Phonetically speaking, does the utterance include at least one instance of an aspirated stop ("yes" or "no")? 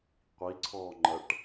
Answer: yes